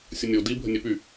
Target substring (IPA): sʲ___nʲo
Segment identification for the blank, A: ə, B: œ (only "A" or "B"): A